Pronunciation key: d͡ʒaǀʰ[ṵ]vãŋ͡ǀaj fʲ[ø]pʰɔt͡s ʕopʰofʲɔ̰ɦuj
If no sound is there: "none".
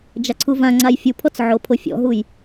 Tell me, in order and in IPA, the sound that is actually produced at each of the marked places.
u, u

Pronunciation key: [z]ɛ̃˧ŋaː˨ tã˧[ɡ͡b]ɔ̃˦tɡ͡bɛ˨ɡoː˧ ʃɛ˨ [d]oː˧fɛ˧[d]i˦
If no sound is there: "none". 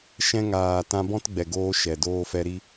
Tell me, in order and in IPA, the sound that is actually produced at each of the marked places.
ʃ, b, d, ɾ

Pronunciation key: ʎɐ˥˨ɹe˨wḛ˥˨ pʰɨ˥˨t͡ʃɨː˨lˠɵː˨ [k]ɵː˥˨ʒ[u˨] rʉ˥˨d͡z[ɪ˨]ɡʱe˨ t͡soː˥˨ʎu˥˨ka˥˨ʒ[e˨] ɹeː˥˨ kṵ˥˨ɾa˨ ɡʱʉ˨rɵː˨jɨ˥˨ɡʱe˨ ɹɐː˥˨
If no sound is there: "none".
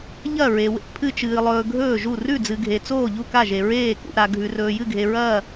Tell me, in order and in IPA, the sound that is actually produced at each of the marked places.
ɡʱ, u˥˨, ɨ˨, e˨

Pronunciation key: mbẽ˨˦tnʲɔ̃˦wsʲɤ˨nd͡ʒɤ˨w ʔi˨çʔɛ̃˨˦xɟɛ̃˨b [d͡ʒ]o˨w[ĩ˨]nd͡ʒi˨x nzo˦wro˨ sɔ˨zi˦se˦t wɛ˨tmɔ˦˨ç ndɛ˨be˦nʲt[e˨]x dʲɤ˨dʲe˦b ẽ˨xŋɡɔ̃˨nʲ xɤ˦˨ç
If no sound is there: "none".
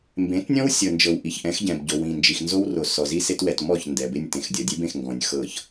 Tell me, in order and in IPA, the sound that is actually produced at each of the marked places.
ɟ, ĩ˨, ẽ˨

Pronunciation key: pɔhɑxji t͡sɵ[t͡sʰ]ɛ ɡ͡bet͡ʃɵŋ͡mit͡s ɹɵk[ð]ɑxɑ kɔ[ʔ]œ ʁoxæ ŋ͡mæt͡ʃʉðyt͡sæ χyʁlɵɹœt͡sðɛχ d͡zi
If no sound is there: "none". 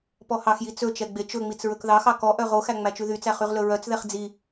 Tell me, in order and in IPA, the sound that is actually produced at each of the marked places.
t͡ʃ, ð, ʔ

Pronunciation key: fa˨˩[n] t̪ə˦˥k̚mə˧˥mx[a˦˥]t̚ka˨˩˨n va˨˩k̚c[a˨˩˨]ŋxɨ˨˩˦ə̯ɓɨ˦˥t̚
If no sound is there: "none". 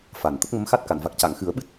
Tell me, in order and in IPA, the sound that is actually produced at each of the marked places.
n, a˦˥, a˨˩˨

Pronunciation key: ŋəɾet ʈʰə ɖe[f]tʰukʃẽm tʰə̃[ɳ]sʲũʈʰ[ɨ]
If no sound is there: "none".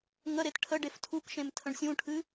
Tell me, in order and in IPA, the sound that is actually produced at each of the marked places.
f, ɳ, ɨ

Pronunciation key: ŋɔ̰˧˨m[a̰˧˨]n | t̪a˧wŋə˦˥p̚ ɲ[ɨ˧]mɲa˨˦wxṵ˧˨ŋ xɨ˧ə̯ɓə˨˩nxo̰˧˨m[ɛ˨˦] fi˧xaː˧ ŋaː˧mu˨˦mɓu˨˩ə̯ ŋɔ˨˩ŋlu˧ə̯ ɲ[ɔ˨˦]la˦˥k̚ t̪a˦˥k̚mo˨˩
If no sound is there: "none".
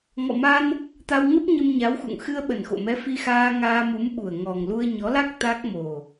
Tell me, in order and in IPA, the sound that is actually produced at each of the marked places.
a˧, ə˧, ɛ˨˦, ɔ˨˦

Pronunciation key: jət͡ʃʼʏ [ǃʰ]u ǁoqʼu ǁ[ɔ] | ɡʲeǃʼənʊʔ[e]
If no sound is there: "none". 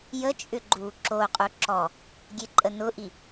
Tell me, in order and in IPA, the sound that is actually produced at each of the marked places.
ɡ͡ǃ, ɔ, i

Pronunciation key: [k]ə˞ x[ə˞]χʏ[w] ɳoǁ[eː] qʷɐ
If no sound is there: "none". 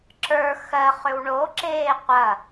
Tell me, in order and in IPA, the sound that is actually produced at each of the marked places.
ǁ, ɜ, w, eː

